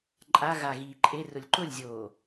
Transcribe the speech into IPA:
ǃʼ a ɣ a ɣ iː ǃʼ e r ʊ lʲ ǃ ʊ lʲ zʲ oː

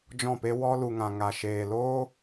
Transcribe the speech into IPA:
d͡ʒ ɔ̃˦˨ p e˦ w ɔ˦ l u˨ ŋ ã˨ ŋ a˧ ʃ eː˨ l oː˦

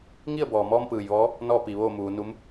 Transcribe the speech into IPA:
ŋ i˥˨ ə̯ b ɔː˩ m ɔː˧ m p ɯː˩ j ʋ ɔː˧˥ | n ɔː˥˨ p iː˩ ʋ oː˥˨ m uː˩˧ n u˧˥ m

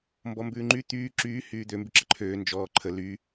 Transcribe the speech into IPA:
m b ɔ m b ʉː ŋ͡ǃ y t̪ yː ǁ yː h yː d̪ ø m b y ǁ ə ǃʰ øː n d͡ʒ ɔː ǃʰ ə l y

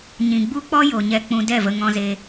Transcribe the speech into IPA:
ɲ ĩ˨ ɡ͡b u˦ k͡p ɔ˦ j o˨ ɲ ɛ˧ k͡p ũ˧ d ɛ˦˨ v ə˧ ŋ ɔ̃˧ z e˧

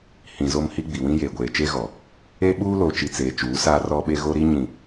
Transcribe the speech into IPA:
h ĩ˨ z o˦ m h i˦ ɡ͡b i˨ w ĩ˦ j eː˨ ɡʷ eː˨ t͡ʃ e˦ ɣ ɔ˨ | e˦ ɓ uː˦ l o˨ t͡ʃ i˨ t͡s eː˨ t͡ʃ uː˨˦ s aː˦ r ɔ˦ ɓ e˦ ɣ o˦ ɾ i˦ ɲ ĩ˨

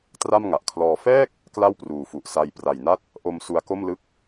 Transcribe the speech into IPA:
t r a˥˩ m ŋ a˨˩ ʔ kʰ l ɔː˧ f ɛː˥˩ k̚ | k l a˥˩ w p r uː˨˩ f u˨˩ ʔ s a˧ j p r a˨˩ j n a˦˥ t̚ | ʔ o˧ m s u˧ a̯ k o˥˩ m l ɯ˦˥ k̚

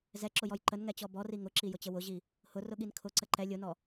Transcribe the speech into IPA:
z ɛ ǁ ʊ j ɔ j ǃ ə n ŋ ɛ t͡ɕ ɔ b ɔ r i ŋ ʊ ǁ i j ʊ t͡ɕ ə w ʊ ʑ i | h ʊ r ʊ ɠ i n kʰ ʊ ǀ ə ǃ ɛ lʲ ʊ n ɔ

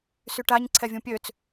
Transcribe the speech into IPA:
s y ʈ a ɲ ǀʰ ɛ vʲ ũ pʲ ø t͡s

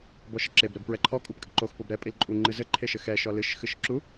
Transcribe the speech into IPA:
b ɔ ʃ ɘ ǁ e b ɾ ɛ b p ɹ ɛ ǃʰ ɔ kʼ u p kʼ ɘ ǃ o x p o b ɾ ɛ pʼ i l ǃʼ u ŋ͡ǃ ɨ z ɘ ǃʰ e ʃ ɘ x ɛ ʃ ɔ l ɨ ʃ x ɨ ʃ ǁ u

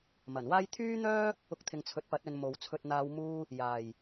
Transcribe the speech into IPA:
m ɐ˨˩ n w aː˥ j t̪ʰ yː˥ n̪ œː˥ | ʊ˧ k̚ t̪ʰ ɪ˨ ŋ t͡sʰ ɵ˨˥ t̚ p ɐ˨˥ t̚ ɵ˧ n m o˨ w t͡sʰ ɵ˧ t̚ n̪ aː˧ w m uː˧ | j aː˨˩ j

